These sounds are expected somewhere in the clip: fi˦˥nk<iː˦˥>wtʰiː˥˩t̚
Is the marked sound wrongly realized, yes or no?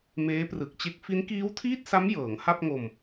no